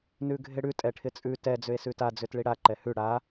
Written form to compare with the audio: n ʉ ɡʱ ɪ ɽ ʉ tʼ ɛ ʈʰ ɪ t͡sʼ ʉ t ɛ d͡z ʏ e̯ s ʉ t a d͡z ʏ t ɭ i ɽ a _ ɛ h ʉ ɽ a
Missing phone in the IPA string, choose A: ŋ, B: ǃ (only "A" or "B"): B